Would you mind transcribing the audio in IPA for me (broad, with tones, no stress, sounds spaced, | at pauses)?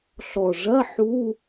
ɬ ɔ˨˩ ʐ ɐ˧˥˧ ħ u˧˥˧